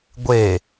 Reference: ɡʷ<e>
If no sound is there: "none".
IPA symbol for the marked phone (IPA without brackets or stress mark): e